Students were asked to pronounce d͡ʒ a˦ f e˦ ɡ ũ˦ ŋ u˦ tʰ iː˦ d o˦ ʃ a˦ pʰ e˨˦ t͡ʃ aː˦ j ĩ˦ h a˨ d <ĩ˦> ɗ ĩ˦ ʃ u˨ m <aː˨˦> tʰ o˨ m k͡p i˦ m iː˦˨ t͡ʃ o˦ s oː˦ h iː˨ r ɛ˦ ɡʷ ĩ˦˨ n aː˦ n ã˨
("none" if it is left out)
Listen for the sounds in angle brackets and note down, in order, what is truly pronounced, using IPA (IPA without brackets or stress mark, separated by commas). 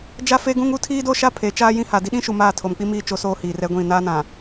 i˦, aː˦˨